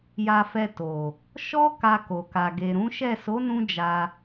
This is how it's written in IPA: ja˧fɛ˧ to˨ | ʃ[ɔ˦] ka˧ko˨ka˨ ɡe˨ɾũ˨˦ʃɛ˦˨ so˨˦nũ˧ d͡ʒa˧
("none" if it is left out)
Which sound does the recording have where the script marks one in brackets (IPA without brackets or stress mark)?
ɔ˦